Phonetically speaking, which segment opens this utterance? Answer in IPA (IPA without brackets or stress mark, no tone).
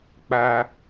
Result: k͡p